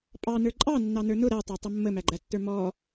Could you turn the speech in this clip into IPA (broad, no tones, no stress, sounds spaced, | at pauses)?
pʼ ɑ n ə˞ ǃʼ ɑ nː ɑ n ə˞ n ʊ ɾ æ tˤ æ tˤ ə mː ə m æ ɡ͡ǃ æ tː ə˞ m ɔ